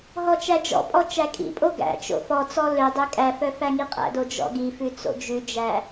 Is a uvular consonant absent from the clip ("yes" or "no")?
no